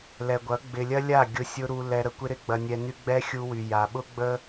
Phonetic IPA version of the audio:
l ɛ˨ ɡʷ ɐ˨˦ ɡ͡b ɪ˨ lʲ ɐ˦ lʲ a˦˨ ɡʲ ʊ˦ sʲ ʊ˦ ɾ u˧ l ɛ˧ ɾ ə˨ kʷ ɪ˦ ɾ ɪ˦ ɡ͡b ɐ˧ nʲ ɛ˧ n y˦ ɡ͡b ɛ˦ xʲ u˧ w y˨ j a˨ ɓ ʊ˦ ɡ͡b ə˦

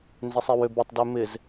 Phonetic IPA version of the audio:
n z ɪ sˤ ɪ w ø b ɪ tˤ d ø m ɪ z

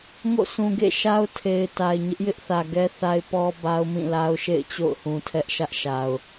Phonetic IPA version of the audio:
ŋ o̰˦˨ s ũ˨ ɡ ḛ˦˨ ʃ a˦ ʊ̯ tʰ e˨ ɪ̯ t a˨ ɪ̯ ɲ ɪ˦ ʔ j ɪ˦ ʔ θ ä˨ ɡ ɛ˦ θ a˦ ɪ̯ p ɔ˦ b a˦ ʊ̯ m ĩ˦˨ l a˦ ʊ̯ ʃ ḛ˦˨ ɪ̯ t͡ɕ o̰˦˨ ʊ̯ h ũ˨ tʰ ɛ˦ ʔ ʃ ä˦ ʔ ʃ a˨ ʊ̯

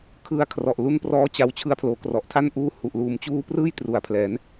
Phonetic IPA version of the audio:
kʰ ɯ˧ a̯ kʰ r ɔ˨˩ ʔ l u˧ n p r ɔː˦˥ t͡ɕ a˧ w t͡ɕʰ ɯ˧ a̯ pʰ l oː˩˦ k r ɔ˨˩ ʔ tʰ a˥˩ n ʔ uː˧ h u˨˩ ʔ l uː˩˦ m t͡ɕ uː˦˥ p r ɯː˥˩ j t r u˨˩ a̯ pʰ l ɛː˩˦ n

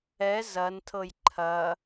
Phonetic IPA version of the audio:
ɛ z ɐ n tʰ ɤ j ǃʰ ɐ

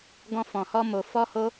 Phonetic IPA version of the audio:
ɡ ɔ̃˧ f ɔ̃˨ h ɔ˧ m o˨ f ɔ˧ h o˧

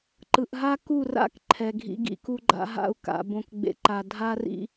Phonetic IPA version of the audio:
ǃ ɯ˨ ʔ ɦ a˦ k u˦˨ r a̰˦˨ k ǃʰ ɛ˨ ɡʱ ḭ˧ ɡ ḭ˧ k u˦ ɡ͡ǃ a̰˦ ɦ a̰˦˨ u̯ k a̰˧ b õ˦ k ɡ͡b ḛ˦ ǃ a˦ dʱ a˦ r ḭ˦

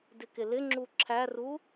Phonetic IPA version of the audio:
d ɪ k ɪ l ɪ ŋ͡ǁ u ǁʰ æ r u

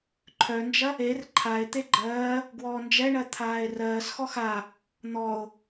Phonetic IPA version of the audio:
ǃʰ œ n d͡ʒ ɐ | e r ǃʰ a e̯ t̪ e ɡ͡ǃ ɜː | ɡ w ɔː n d͡ʒ ɛ ɳ ɜ t̪ʰ aː e̯ r ɜː s x ɔ x a | n̪ ɔ o̯

